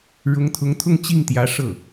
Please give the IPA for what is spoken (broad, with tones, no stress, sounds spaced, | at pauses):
ɻ ʊ˧˥ ŋ t̪ʰ ʊ˧˥ ŋ t̪ʰ ʊ˥˧ ŋ t͡ɕ i˥˩ ŋ t̪ j ä˧˥ ʂ ɤ˥˩